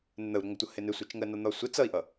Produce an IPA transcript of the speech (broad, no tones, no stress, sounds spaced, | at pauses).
n ə n̪ ə u̯ ɾ ʊ ŋ ə tʷ ʌ h ɪ n ɪ sʷ ɛ t͡ʃ ŋ ɜ n ɒ n̪ ɒ sʷ ɪ t͡s ʌ i̯ ʔ ʌ